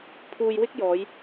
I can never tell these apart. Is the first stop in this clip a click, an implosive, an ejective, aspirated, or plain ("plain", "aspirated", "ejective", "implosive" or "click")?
aspirated